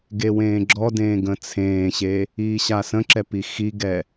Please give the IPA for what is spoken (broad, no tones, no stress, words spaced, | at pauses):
ɡewẽːɡ͡ǁɔdẽː ɡə̃t͡sʰẽːɕe | iːɕasə̃ǁɛ pixiɡɛ